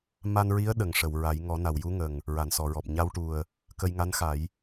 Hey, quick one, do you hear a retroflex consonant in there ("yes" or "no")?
yes